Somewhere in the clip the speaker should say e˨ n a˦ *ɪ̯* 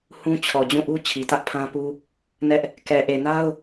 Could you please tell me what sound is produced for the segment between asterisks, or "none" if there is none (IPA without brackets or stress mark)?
ʊ̯